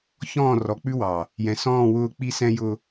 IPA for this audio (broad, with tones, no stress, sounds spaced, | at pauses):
ç ɔ̃ː˦˨ r ɔ˨ k͡p ʉ˦ w ɑ˨ | j ɛ̃˨ s ɔ̃ː˦˨ w ʊː˦˨ k͡p i˦ s ɛ̃˦ j ʊ˦